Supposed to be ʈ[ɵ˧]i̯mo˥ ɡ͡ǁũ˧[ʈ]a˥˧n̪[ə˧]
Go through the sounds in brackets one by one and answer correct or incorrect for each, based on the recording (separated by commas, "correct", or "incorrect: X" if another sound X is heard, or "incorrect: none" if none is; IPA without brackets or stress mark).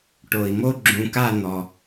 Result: incorrect: o˧, incorrect: k, incorrect: ɔ˧